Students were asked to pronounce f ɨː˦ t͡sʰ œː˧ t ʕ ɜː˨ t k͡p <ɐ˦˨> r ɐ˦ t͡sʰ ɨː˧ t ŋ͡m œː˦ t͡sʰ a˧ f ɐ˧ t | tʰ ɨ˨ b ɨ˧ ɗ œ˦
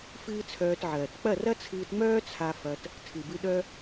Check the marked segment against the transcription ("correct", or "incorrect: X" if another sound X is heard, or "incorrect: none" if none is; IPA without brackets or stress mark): correct